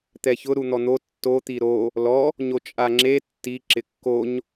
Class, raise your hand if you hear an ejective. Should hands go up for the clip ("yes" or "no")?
yes